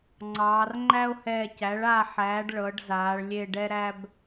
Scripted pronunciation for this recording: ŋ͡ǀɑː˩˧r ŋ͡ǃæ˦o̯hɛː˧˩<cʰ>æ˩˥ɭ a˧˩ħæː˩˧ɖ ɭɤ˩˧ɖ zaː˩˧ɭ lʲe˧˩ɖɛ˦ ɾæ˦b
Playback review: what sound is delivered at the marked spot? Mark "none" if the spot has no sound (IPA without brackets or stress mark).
c